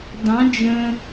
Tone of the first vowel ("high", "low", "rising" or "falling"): rising